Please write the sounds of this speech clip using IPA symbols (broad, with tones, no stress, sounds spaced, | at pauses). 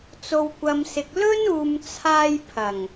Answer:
t͡s o˨ w kʷ ɐ˨ m s ɪ˨ k̚ l ɵ˥ n uː˨ m t͡sʰ aː˧ j pʰ ɐ˨˩ ŋ